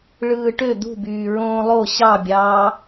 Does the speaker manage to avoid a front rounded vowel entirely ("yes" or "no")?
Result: no